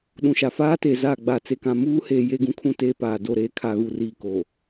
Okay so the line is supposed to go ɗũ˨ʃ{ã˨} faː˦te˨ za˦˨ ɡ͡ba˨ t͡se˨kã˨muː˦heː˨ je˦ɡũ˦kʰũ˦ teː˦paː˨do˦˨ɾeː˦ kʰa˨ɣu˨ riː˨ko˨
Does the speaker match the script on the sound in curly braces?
no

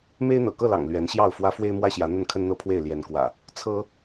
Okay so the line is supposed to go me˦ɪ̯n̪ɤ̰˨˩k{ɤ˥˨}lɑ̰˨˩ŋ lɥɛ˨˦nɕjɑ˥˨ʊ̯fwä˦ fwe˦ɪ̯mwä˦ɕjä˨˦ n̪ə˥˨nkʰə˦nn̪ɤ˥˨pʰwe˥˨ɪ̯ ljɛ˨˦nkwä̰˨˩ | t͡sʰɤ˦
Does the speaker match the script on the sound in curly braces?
yes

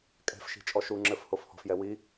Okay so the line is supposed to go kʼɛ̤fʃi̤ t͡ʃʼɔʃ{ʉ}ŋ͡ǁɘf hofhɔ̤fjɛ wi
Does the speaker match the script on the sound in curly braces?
no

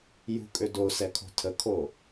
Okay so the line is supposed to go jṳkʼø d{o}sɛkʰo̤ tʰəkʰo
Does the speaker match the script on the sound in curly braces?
yes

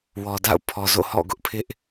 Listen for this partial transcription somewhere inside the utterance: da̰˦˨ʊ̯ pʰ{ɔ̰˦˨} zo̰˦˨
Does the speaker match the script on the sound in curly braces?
no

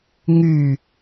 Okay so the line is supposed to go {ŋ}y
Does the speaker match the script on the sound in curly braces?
yes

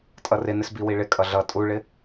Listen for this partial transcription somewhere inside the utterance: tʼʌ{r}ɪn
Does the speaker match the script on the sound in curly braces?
yes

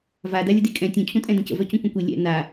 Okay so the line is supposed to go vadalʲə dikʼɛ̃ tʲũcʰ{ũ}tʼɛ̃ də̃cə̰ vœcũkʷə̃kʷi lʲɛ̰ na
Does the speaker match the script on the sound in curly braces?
yes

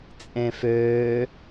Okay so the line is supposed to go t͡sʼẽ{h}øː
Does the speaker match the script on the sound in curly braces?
no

